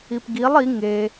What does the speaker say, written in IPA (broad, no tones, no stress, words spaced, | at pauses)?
ipɡilˠ i ŋe